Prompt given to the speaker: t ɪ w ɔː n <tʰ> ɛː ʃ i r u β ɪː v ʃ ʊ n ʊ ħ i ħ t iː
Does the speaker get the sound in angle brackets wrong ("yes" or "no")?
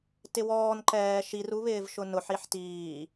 yes